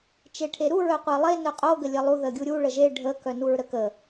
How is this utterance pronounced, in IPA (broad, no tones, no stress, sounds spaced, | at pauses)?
t͡ʃ e ʈʰ e ɾ u ɹ œ qʷ e lˠ e n œ qʼ o ɡ ə lʲ ə lˠ u ð ə ɡʲ u ɾʲ u ɭ ə ʒ e ɖʱ ə k œ n u ɹ ɾ ə k ə